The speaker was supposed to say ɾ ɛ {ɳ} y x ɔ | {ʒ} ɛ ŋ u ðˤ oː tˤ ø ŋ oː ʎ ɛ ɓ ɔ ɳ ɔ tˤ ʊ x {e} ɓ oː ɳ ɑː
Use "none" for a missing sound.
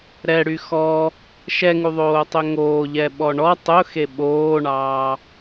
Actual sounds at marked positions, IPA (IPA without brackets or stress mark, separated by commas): ɽ, ʃ, e